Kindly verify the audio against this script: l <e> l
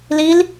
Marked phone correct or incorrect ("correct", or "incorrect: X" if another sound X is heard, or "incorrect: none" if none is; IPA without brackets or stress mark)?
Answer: incorrect: i